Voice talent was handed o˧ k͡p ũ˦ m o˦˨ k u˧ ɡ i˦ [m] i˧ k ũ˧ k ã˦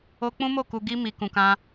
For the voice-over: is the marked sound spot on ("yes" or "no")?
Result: yes